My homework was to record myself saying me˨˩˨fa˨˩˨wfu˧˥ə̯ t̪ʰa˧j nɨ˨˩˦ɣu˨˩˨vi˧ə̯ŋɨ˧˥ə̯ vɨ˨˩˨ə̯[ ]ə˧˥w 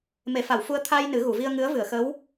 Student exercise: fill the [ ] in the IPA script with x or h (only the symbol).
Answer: x